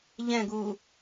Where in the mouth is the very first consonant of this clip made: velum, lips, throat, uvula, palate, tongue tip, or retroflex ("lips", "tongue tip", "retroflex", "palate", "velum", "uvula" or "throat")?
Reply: palate